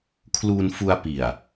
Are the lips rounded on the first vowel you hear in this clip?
yes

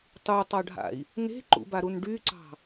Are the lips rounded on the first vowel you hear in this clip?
yes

